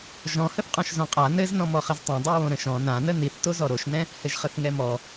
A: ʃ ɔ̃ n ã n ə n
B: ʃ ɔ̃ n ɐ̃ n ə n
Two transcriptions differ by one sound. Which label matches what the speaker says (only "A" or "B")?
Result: A